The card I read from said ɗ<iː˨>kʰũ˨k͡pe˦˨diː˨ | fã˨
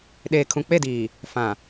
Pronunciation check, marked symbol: incorrect: eː˨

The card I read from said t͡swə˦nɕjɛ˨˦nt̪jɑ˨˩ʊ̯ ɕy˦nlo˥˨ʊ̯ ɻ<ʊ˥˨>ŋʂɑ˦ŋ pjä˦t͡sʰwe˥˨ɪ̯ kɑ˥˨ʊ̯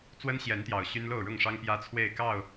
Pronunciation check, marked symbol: correct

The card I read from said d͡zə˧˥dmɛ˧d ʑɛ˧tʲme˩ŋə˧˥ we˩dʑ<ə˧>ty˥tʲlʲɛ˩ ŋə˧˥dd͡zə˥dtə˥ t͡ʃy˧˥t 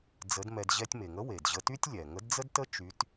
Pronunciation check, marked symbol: correct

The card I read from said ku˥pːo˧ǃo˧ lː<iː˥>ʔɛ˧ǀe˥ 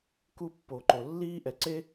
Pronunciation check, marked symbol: correct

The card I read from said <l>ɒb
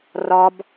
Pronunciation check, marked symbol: incorrect: r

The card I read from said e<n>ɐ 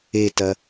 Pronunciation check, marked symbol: incorrect: t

